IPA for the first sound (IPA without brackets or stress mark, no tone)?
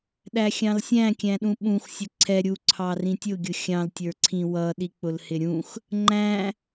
ɗ